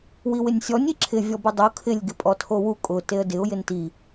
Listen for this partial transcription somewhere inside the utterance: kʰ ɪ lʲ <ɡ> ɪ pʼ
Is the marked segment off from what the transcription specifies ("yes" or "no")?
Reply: no